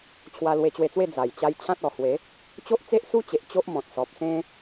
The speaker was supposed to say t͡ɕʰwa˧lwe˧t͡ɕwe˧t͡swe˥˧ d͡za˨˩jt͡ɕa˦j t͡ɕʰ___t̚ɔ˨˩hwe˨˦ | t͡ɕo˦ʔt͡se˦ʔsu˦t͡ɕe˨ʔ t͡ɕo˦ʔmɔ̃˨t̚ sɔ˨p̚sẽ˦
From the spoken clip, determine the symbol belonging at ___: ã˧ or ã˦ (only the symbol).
ã˦